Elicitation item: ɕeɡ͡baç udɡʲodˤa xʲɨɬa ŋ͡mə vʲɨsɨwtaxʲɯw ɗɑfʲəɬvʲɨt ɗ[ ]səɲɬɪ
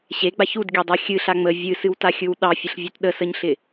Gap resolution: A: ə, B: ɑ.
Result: A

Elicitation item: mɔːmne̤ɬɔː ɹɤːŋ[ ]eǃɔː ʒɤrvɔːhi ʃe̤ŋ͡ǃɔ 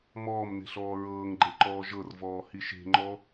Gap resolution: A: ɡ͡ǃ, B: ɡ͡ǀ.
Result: A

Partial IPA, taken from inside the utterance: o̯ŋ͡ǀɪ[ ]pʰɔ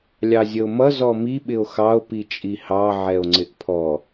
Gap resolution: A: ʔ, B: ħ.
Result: A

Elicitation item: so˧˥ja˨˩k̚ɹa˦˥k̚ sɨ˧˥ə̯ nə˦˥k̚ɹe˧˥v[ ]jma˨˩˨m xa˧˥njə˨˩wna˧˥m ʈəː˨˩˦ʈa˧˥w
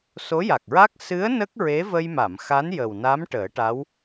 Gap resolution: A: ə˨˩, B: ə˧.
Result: B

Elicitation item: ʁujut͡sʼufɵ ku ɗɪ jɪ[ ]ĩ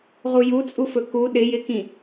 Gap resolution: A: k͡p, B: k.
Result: B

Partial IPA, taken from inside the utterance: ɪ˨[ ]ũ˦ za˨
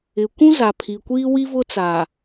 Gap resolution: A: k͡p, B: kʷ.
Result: B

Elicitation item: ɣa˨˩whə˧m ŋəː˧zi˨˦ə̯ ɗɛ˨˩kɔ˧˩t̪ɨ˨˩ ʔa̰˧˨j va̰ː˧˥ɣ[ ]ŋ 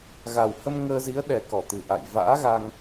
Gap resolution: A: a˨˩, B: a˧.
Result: B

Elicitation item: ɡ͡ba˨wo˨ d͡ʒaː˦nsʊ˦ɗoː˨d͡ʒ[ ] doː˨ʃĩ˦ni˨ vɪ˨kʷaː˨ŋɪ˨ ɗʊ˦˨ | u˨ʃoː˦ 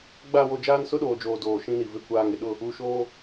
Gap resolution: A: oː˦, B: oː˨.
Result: B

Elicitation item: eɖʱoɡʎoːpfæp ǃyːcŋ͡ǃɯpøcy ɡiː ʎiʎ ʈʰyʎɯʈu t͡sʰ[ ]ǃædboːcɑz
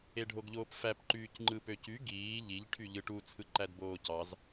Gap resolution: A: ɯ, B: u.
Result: A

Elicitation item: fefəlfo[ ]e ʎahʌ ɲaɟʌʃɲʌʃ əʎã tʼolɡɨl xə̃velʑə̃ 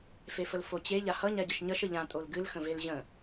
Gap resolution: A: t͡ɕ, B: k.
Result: A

